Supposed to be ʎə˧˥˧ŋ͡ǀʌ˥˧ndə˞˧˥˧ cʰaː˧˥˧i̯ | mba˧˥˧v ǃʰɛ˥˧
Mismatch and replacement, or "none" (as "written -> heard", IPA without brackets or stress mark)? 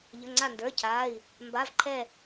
ʌ˥˧ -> a˥˧